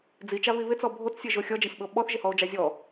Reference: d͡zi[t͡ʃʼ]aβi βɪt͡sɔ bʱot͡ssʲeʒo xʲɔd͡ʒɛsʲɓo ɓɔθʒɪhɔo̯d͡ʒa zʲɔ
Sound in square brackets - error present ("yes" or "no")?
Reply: yes